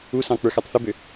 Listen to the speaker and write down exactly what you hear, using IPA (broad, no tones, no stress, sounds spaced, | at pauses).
u s ɑ̃ k͡p ə˞ x ə˞ tˤ θ ɵ b ø